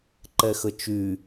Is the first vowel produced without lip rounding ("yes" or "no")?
yes